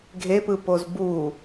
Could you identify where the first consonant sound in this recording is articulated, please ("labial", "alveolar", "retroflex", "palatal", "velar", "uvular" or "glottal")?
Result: velar